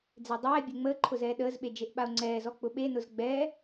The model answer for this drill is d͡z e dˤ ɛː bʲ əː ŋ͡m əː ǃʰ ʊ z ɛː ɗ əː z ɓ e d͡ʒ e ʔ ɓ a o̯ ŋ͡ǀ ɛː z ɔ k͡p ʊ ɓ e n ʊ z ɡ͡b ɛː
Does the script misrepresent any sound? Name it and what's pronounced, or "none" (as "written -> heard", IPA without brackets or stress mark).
none